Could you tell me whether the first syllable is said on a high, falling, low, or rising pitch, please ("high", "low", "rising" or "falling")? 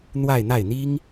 falling